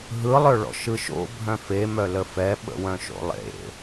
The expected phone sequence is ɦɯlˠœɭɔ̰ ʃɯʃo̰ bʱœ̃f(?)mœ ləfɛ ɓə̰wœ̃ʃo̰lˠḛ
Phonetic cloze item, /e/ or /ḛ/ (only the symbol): e